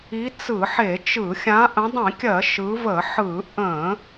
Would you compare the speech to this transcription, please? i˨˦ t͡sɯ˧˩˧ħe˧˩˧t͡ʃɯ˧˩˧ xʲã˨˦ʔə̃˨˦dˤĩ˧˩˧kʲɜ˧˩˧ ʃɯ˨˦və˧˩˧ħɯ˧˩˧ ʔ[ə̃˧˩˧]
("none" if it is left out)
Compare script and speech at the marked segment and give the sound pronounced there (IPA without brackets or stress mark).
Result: ə̃˧˩˧